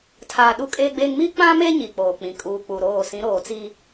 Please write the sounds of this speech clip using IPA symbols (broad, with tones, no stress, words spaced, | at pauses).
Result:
tʰaː˨ ɗu˦kʼeː˦ɡ͡beː˦ŋ mi˦ k͡pã˦me˦ ɲi˨k͡poː˨k͡pĩ˨ kʼuː˨ k͡pu˨ɾoː˦˨ sĩ˨˦ɾoː˨t͡si˦